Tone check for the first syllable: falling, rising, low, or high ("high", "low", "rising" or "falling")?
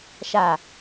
falling